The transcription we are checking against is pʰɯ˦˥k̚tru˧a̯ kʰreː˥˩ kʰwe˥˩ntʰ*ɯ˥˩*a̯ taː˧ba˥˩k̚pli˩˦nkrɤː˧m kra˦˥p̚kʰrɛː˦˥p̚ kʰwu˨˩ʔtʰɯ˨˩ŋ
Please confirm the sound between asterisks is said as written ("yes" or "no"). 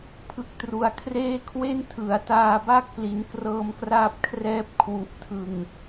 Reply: no